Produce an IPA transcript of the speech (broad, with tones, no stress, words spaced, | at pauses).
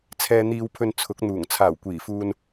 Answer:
t͡sʰɛː˧n̪iː˧wpʰɵ˧n t͡sʰʊ˨˥k̚n̪uː˨˩ŋ t͡sʰaː˨˩wkʷiː˨˩fuː˧n